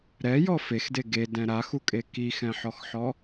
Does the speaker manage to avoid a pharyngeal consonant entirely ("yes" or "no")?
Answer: no